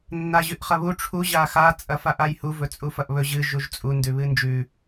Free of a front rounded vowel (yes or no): yes